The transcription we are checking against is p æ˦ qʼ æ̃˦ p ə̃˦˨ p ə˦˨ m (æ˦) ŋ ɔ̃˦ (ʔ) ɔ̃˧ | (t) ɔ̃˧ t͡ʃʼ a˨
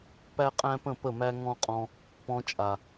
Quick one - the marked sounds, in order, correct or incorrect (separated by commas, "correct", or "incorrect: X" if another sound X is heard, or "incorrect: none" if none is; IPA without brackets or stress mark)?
correct, incorrect: qʼ, incorrect: p